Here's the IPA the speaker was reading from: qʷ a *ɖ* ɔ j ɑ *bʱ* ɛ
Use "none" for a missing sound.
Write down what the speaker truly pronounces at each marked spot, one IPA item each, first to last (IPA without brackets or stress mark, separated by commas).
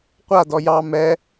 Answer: d, m